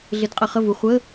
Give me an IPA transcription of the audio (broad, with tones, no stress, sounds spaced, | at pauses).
ɮ ɪ˨˥ d qʼ ə˨ χ ə˥˩ v u˨ χʷ ə˧˥˧